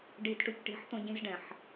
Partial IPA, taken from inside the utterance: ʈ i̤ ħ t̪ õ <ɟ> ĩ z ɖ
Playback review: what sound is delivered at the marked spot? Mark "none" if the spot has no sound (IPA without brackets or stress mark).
ɟ